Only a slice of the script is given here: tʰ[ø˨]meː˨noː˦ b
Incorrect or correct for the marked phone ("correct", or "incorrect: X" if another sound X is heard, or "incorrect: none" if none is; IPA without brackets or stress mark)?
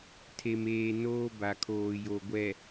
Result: incorrect: e˨